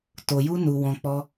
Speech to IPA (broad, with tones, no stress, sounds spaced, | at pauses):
t o˧ j u˦ n u˧ w ɔ̃˧ k͡p ɔ˦